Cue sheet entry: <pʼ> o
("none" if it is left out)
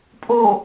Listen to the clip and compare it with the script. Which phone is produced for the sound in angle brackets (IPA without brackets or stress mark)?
pʼ